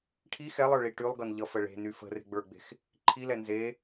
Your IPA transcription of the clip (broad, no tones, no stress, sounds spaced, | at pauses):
ʈʰ i x ɛ lˠ ə˞ ɭ i ʈ y lˠ ɡ ʌ n ʎ ʌ f ə ɭ e̤ n y f ə̤ r e̤ ɡ͡b ə˞ ɡ͡b e̤ x | ǃʰ i l ɛ n z e